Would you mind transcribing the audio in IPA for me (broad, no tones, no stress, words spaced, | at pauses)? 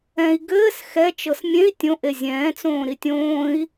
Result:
ɛ̃i̯ ɡɘːs xɛt͡ʃɤs mʲẽi̯ tʲõ ʔezʲɛ̃ːt͡sõː ɾitʲõːi̯